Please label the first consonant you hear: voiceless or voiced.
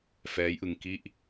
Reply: voiceless